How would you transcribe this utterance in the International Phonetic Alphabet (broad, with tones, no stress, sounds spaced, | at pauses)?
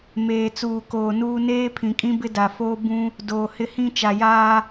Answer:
m eː˨ t͡s uː˨ k oː˨ n uː˦ n eː˦ pʰ ĩ˨ kʼ ĩ˦ b ɪ˦ d a˨ f oː˦ b ũ˦ | d oː˨ h ɪ˦ h ĩ˦ t͡ʃ a˨ j aː˦